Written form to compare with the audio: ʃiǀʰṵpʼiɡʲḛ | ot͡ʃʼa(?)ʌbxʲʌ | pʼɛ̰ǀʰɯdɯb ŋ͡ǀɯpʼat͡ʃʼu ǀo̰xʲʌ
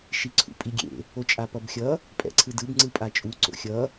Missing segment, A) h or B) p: B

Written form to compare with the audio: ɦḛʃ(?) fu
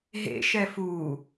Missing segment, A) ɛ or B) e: A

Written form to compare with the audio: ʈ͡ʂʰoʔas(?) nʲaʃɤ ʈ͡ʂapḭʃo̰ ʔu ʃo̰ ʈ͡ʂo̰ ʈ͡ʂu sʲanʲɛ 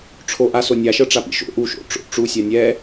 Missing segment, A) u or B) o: B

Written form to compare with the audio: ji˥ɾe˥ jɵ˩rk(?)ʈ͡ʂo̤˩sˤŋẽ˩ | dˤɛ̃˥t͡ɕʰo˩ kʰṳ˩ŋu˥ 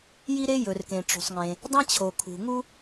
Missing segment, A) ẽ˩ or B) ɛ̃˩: A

